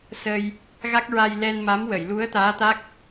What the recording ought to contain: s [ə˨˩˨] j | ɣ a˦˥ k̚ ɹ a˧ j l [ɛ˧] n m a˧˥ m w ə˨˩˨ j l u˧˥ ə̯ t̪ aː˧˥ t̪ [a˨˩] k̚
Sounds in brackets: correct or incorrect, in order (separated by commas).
incorrect, correct, incorrect